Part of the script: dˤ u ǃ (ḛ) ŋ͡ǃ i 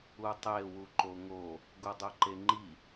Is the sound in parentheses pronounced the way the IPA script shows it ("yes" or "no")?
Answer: no